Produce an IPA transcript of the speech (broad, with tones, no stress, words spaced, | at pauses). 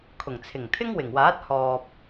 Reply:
kʰʊ˨˩ŋt͡sʰɪ˨˩ŋt̪ʰɪ˥ŋ wɪ˨˩ŋwaː˨˥t̚ hɔː˨p̚